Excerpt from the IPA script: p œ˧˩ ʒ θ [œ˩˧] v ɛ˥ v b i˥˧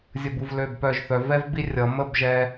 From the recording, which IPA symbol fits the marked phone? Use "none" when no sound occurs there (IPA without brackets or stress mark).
œ˩˧